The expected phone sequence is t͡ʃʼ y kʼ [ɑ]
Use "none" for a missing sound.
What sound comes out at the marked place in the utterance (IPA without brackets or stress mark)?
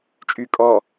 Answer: ɔ